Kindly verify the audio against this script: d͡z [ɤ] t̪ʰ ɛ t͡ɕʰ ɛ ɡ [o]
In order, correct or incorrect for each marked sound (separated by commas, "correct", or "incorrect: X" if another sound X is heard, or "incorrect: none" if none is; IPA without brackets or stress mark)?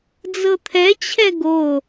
correct, correct